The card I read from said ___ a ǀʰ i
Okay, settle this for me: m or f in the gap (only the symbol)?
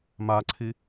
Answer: m